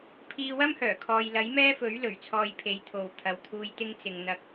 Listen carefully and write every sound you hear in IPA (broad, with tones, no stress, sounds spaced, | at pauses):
pʰ iː˧ w ɐ˥ m h œː˨˩ kʰ ɔː˧ j l ɐ˨˥ j m ɛː˥ f ɵ˨˥ ɥ l ɵ˨˩ ɥ t͡sʰ ɔː˧ j pʰ e˨˧ j t̪ʰ o˨ w t̪ʰ ɐ˨ w t̪ʰ uː˨ j t̪ ɪ˧ ŋ t͡s ɪ˨ ŋ n̪ ɐ˧ k̚